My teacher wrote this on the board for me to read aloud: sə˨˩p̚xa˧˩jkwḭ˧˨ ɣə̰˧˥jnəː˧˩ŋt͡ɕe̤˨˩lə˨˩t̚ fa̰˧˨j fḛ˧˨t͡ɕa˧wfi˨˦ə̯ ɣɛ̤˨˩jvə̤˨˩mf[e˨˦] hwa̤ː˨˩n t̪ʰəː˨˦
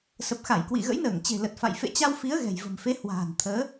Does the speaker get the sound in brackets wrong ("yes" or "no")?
no